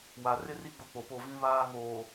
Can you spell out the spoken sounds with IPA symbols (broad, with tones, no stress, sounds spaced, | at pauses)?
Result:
w a˨ r ɪ˦ r i˦ ɡ͡b ʊ˦ k͡p o˨ p o˦˨ v ĩ˦ β aː˦ ŋ oː˨